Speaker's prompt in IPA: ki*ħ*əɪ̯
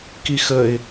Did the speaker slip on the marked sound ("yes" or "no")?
yes